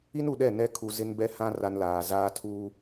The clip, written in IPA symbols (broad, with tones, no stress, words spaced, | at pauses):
i˦nu˨ɗɛ˦˨ nɛ˦kʰu˨ zɪ˦nbɛ˦hã˦ ra˦nlaː˨ zaː˦tʰuː˦